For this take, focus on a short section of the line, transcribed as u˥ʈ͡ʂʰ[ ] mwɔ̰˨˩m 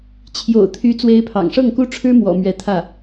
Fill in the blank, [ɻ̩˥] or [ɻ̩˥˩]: ɻ̩˥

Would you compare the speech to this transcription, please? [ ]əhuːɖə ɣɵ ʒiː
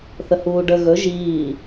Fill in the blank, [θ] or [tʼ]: θ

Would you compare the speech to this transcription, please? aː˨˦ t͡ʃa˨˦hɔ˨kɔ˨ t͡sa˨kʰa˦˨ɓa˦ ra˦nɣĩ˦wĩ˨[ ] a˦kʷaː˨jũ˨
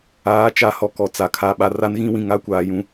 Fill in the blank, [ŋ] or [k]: ŋ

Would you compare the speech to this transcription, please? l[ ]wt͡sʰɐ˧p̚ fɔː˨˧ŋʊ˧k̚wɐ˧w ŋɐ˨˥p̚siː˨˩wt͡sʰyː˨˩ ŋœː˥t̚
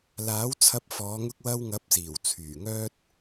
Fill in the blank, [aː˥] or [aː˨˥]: aː˨˥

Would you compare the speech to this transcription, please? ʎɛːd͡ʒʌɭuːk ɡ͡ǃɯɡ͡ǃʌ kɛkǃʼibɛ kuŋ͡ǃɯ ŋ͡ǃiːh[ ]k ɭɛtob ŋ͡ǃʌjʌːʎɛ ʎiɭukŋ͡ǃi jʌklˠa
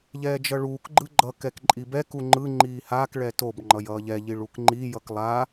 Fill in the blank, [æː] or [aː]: aː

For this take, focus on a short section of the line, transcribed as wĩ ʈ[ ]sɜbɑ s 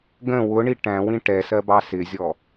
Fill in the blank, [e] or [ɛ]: ɛ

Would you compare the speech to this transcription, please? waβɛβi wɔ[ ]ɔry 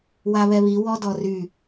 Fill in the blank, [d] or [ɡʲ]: d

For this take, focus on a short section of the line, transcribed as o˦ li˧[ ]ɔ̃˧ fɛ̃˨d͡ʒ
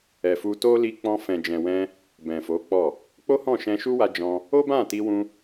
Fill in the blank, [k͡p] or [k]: k͡p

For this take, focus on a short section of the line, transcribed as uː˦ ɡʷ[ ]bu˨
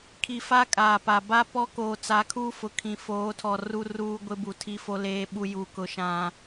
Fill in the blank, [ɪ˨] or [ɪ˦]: ɪ˦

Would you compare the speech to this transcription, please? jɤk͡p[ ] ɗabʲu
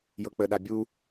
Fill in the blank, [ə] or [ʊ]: ə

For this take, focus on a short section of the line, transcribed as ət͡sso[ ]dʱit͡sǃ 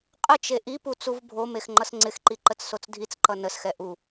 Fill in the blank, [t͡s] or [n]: t͡s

